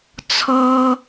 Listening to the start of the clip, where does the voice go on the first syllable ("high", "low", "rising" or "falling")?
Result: low